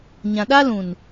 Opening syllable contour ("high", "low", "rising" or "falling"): low